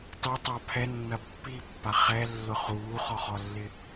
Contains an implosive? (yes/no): no